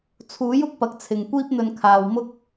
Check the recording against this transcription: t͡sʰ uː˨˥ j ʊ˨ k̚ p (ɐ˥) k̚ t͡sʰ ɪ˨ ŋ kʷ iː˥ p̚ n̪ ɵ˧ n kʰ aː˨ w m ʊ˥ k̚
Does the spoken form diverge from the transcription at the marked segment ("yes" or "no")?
yes